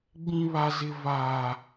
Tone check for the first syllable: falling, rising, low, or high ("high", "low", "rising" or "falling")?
high